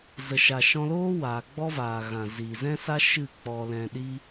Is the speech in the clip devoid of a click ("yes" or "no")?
yes